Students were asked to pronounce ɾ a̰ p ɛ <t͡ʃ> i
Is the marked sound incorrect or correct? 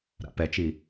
correct